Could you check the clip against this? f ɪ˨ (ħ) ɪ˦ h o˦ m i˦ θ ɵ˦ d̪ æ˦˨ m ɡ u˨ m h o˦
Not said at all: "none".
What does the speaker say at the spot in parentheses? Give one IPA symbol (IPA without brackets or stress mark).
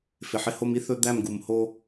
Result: ħ